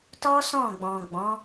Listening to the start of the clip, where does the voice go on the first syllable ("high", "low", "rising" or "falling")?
high